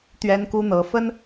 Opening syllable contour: high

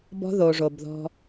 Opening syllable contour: high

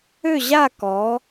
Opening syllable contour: falling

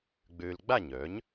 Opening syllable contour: low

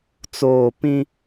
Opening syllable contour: low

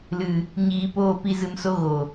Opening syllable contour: low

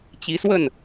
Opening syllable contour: rising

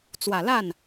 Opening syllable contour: low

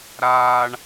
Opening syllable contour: high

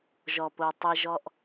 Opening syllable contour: low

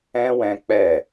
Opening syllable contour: high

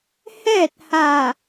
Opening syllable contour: falling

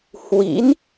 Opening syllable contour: rising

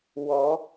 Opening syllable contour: rising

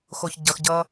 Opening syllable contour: low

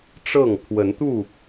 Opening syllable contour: falling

